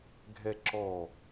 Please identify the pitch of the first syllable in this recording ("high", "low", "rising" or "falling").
high